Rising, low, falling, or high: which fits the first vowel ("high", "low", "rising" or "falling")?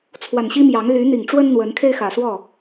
low